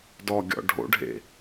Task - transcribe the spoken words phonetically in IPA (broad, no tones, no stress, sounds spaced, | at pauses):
d ɔ ɡʲ ɔ̰ ɖʱ o̰ ɖʱ ḛ